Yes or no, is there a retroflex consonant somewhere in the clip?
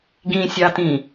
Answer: no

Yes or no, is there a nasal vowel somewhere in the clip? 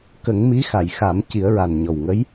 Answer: no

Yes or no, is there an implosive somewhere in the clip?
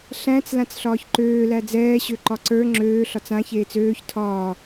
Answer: no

